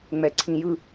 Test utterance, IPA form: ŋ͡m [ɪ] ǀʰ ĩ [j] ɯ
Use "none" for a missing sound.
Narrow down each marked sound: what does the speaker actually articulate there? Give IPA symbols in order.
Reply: ɛ, j

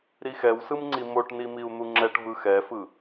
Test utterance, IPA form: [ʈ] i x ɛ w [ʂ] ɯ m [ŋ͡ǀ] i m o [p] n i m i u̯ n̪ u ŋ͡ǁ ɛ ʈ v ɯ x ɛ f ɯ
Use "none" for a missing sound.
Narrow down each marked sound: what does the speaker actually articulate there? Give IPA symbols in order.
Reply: ɾ, s, ŋ͡ǀ, ʈ

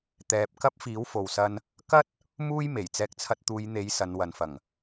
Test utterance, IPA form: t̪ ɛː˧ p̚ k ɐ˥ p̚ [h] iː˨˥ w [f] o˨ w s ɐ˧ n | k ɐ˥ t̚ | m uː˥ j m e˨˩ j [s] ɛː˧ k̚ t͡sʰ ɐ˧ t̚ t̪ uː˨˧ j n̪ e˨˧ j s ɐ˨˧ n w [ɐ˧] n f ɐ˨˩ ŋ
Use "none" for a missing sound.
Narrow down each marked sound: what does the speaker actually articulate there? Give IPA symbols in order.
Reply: f, f, t͡s, ɐ˨

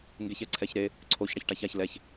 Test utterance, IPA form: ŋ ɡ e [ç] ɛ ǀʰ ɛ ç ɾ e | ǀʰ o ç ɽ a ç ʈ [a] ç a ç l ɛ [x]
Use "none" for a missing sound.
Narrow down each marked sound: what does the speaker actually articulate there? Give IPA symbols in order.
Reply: ç, a, ç

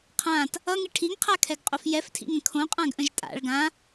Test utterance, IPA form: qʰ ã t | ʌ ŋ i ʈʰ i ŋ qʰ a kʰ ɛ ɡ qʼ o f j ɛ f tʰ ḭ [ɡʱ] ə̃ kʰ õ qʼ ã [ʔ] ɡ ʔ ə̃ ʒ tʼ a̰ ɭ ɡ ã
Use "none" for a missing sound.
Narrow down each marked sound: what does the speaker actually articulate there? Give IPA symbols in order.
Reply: ŋ, none

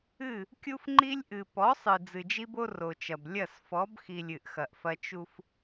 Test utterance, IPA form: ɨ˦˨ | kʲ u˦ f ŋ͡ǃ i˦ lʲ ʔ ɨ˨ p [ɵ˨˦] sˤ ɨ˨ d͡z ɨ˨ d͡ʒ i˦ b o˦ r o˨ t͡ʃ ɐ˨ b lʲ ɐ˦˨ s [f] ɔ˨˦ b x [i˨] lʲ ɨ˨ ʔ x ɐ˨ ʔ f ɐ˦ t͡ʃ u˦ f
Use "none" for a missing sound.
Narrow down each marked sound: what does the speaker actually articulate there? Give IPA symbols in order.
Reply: ɔ˨˦, f, i˨

